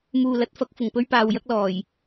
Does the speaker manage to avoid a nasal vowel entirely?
yes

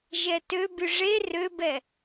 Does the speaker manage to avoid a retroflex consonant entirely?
no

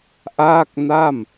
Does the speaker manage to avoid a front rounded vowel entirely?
yes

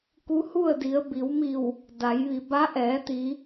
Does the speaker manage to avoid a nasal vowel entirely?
yes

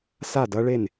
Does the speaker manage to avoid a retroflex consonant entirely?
no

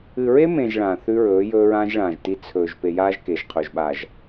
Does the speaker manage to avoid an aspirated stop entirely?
no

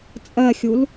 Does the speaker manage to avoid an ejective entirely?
no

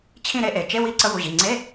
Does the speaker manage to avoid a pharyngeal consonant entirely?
yes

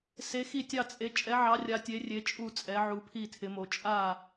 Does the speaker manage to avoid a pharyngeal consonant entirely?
no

